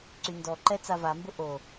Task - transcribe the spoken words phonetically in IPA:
ǀyndɔǃɛ t͡savambʊ ʔo

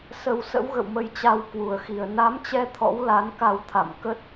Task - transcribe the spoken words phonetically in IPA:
sə˧w sə̰˧˥wɣə̰˧˨wmə˧j t͡ɕa˧wkwu˨˩ə̯xi˨˩ə̯ na˨˦mt͡ɕɛ˧ t̪ʰɔ̰˧˥wla˨˦nka˧w t̪ʰa̰˧˨mkə˦˥t̚

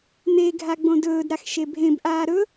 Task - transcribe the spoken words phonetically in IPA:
n̪eɡʱa ɡ͡bõdɵːdɾax ʃebʱẽbʔaː ɾɵ

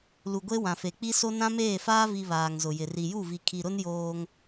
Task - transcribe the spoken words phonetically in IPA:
lu˨ɡʷe˦ wã˨fe˨k͡pi˦so˦ nã˦meː˦˨faː˦vi˨ βaː˨ŋzʊ˨jɪ˨ ri˨ju˦˨vi˨ kʰi˨ɾʊ˦n joː˦ŋ

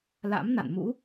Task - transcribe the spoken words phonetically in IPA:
la̰˧˥mna̰˧˨nmṵ˧˥

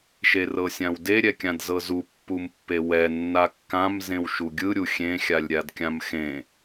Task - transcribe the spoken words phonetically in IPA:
ʃerɤsʲãwde ɾʲɛkʲãdzɤzu pːumpːewɛ nːakːãm zẽwʃuɡʲɯ ɾʲuxʲẽ xʲalʲɾʲadkʲãmxẽ

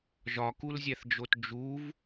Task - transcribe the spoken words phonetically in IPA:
ʒɒkulzʲæθd͡ʒot d͡ʒuv

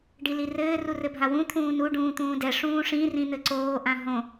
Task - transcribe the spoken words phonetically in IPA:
ɖilirɘː rurɘbʱawũ t̪ʰũːnu ɖũːt̪ũːdɛ ʂũːʂĩ rĩn̪ɘǀoː ʔãɦõ

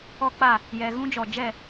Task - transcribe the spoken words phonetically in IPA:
ɔ˦k͡pa˦˨ | jɛ˨ ɣũ˦d͡ʒɔ˨ d͡ʒɛ˦˨

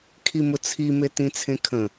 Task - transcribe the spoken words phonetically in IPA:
kʰimʊt͡sʰi metĩt͡sʰẽkʰə̃

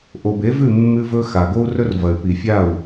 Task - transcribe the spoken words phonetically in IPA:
ʔo˨be˨˦vʉ˦˨ mːʉ˧vɵ˧ xa˨ɡo˦u̯rɵ˦rvɐ˨y̯ pi˨fʲa˦˨u̯

